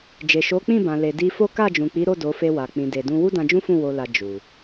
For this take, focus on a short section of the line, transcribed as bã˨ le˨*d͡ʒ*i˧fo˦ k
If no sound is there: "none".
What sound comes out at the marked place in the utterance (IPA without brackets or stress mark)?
d